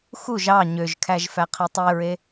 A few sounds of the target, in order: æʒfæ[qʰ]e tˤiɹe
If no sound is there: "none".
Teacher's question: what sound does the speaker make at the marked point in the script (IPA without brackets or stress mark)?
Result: qʰ